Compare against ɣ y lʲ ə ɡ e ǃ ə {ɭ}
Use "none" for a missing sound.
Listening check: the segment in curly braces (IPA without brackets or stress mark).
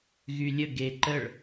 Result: ɭ